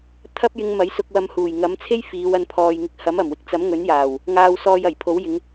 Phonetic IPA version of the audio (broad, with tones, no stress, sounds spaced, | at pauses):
t̪ʰ ɐ˥ p̚ j ɪ˧ ŋ m ɐ˨˥ j s ʊ˧ k̚ w ɐ˧ m h uː˨˩ j ŋ ɐ˨˥ m t͡sʰ e˥ j f iː˨˧ w ɐ˧ n pʰ ɔː˨ j ŋ ɪ˧ k̚ h ɐ˨˥ m ɐ˨˩ m w ɪ˨ k̚ t͡s ɐ˨˥ m ŋ ɵ˨˥ n j aː˨˩ w | ŋ aː˧ w s ɔː˧ j ɐ˨˩ j pʰ o˨˥ w j ɪ˨˧ ŋ